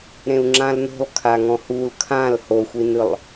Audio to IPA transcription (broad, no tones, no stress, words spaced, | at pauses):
ɾẽu̯ŋ͡ǁãlno̤lˠ kʰaŋɔ̃hul kʰãl hoxʷinɯlˠ